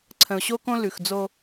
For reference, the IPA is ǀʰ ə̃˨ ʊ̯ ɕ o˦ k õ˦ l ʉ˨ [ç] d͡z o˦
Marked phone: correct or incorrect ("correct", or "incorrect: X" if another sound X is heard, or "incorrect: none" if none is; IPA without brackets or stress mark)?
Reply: incorrect: x